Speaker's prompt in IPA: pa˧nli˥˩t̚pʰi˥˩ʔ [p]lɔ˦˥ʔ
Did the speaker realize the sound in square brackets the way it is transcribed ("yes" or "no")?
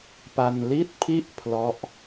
no